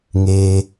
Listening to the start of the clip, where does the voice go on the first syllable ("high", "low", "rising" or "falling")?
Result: low